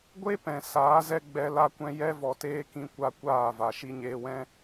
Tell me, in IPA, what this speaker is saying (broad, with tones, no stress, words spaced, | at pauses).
ɡʷe˦pɛ̃˨ saː˨˦zɛ˦ ɡ͡bɛ˧ la˧kʷɛ̃˧ jɛ˧vɔ˨teː˧ kĩ˧kʷa˧ kʷaː˦˨va˨ ʃi˧ɲeː˧wɛ̃˦